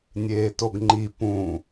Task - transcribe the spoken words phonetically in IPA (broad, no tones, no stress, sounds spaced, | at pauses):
nʲ eː t o ɡ ŋ͡ǃ i p ũ